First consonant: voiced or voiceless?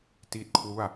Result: voiceless